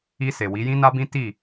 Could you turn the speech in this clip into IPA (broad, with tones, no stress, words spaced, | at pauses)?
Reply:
i˧se˨ wi˨˦jĩ˦na˦bĩ˦ ti˦˨